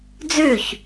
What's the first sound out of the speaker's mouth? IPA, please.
d͡z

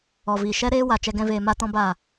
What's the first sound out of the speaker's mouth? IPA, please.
ɔ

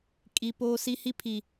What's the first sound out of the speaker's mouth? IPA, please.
kʼ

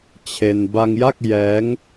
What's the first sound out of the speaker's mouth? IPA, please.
t͡ɕʰ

